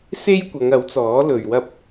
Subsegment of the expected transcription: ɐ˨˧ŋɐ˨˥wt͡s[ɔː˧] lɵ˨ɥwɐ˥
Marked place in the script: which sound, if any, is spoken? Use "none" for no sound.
ɔː˨˥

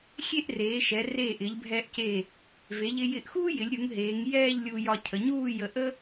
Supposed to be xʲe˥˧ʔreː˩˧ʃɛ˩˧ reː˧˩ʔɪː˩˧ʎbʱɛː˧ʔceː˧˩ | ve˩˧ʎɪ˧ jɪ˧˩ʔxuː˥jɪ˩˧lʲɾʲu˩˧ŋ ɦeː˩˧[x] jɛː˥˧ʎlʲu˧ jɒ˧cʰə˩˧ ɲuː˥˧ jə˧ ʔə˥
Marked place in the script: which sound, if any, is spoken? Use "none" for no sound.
ŋ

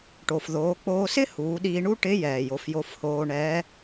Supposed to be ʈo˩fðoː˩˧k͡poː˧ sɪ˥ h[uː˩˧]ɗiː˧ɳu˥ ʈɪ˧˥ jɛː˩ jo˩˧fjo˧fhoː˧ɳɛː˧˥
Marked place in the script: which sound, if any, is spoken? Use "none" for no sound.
uː˩˧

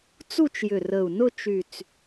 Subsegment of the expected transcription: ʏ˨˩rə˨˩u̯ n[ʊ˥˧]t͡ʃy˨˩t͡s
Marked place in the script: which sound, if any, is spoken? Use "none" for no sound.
ʊ˥˧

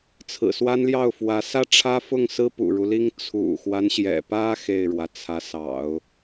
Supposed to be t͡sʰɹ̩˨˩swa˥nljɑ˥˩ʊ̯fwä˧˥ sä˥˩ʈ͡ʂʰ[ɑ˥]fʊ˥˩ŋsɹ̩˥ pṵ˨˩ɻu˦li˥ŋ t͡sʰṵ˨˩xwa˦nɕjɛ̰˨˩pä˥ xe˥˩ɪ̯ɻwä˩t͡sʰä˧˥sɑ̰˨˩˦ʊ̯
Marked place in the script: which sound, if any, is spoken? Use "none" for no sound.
ä˥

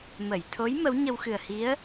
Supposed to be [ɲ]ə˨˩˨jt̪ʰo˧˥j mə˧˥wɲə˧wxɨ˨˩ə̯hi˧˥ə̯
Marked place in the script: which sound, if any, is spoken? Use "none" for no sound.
m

